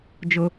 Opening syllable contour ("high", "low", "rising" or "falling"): high